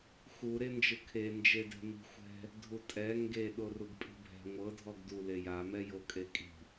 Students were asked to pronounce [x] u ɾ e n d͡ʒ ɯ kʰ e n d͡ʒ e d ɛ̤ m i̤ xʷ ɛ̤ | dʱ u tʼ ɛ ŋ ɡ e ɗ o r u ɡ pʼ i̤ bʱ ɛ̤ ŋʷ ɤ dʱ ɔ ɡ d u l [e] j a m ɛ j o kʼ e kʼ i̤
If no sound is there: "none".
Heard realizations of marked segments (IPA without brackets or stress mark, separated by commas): x, e